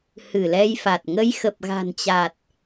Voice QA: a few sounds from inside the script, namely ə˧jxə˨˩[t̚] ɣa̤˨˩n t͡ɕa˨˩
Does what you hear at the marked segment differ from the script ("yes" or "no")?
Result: yes